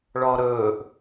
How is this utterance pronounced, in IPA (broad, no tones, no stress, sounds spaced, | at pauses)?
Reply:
ɭ ɔ ɾ ɵː ʔ